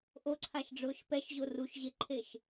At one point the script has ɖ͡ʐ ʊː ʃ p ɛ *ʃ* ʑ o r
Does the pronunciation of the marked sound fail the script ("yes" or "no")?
no